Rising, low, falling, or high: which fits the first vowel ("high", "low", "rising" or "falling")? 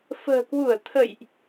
low